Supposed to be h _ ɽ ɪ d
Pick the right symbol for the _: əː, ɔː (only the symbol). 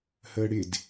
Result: əː